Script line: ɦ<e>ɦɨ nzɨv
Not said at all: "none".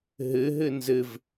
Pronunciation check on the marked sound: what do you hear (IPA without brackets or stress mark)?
ɨ